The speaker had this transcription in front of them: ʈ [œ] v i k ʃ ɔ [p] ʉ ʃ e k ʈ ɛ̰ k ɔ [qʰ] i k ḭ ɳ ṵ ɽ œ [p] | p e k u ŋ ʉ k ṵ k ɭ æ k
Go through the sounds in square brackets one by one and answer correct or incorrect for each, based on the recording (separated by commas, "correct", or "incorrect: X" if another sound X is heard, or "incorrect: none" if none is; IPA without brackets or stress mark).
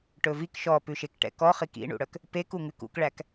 incorrect: ɵ, correct, incorrect: χ, incorrect: k